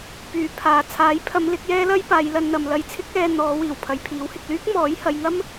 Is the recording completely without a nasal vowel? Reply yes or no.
yes